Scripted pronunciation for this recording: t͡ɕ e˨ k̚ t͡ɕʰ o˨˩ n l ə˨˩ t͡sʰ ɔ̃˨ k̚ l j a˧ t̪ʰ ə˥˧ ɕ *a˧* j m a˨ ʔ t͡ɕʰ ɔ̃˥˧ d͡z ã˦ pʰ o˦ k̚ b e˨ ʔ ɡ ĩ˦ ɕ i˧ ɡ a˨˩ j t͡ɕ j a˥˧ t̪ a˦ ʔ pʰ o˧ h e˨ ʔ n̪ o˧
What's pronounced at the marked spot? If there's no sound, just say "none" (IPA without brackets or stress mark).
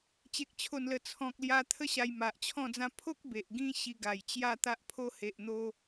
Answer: a˧